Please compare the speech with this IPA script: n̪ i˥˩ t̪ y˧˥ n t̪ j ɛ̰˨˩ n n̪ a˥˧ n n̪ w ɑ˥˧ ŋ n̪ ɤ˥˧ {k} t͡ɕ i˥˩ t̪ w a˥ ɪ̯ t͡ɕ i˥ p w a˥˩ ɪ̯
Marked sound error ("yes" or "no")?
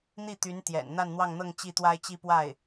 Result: yes